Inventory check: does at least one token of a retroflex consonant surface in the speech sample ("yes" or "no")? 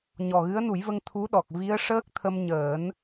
yes